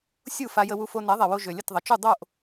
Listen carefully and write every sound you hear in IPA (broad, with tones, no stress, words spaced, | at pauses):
sʲu˥˩fa˧jə˧wu˧ fo˧nɛ˩˥ðˤɛ˩wo˧ ʒø˩lʲə˥˩tðˤə˩t͡ʃu˥˩ dˤo˥˩ʔ